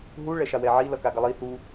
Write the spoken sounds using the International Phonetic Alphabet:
ɦ u ɭ ɛ ʃ a w ɛ ʕ i l ʌ k a ɡ ʌ lˠ i θ u

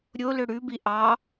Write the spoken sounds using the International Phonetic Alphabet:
ɾʲ o l ø ɽ ʉ b i ʔ ɑ

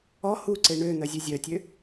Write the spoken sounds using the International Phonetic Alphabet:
ɔ h u ǀ e ɳ ø n̪ œ zʲ ø zʲ œ tʲ ø

